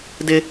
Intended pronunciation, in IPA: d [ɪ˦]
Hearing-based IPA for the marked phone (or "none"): ɪ˦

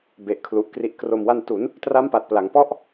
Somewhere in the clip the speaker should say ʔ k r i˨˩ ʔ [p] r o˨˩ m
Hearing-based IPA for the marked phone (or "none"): k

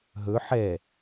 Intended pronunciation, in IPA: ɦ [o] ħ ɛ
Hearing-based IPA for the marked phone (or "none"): ɵ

